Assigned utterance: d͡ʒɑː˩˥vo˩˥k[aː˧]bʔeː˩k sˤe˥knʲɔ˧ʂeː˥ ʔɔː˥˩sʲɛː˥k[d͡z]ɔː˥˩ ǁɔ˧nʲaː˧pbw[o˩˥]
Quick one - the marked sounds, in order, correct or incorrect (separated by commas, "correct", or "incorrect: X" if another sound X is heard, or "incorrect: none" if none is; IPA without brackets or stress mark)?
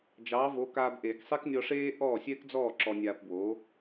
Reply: correct, correct, correct